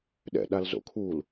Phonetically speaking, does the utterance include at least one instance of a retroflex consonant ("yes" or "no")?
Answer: no